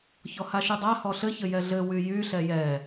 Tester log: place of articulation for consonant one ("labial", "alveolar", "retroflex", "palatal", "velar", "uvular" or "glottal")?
palatal